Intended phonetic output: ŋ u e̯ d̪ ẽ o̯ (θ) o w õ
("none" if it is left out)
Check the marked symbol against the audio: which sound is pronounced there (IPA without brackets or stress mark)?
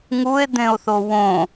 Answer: θ